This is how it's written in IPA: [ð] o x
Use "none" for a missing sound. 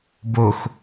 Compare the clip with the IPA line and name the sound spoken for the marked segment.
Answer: b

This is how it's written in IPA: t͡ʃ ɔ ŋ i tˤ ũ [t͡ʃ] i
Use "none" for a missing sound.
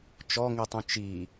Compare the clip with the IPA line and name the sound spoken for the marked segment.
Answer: t͡ʃ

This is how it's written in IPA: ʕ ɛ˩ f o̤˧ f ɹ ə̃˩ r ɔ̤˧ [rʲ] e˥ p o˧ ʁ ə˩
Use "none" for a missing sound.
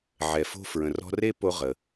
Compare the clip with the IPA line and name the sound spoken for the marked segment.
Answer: r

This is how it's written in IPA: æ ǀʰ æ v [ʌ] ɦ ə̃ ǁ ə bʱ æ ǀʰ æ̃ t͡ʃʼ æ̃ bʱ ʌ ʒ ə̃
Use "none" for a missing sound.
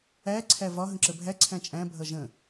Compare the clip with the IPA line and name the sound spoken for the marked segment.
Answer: ɒ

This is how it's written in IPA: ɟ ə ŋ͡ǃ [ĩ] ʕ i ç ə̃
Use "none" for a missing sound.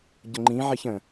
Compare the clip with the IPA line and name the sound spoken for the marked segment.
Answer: ĩ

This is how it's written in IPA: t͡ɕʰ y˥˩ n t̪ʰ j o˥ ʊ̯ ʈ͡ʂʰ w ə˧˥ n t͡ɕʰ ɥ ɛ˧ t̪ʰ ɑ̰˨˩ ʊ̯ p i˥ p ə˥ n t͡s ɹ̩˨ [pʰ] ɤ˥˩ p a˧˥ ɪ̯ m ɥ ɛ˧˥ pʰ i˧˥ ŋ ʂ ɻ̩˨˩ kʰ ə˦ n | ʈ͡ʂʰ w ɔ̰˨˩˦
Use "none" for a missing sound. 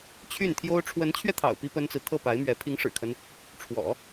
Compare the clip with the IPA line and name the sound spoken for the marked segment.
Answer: t̪ʰ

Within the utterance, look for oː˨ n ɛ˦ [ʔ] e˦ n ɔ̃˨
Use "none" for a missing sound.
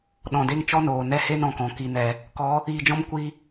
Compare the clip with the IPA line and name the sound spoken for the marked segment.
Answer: h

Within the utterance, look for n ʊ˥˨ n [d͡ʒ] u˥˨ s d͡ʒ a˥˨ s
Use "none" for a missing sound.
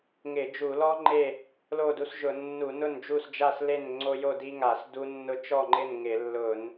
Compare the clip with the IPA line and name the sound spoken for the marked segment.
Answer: d͡ʒ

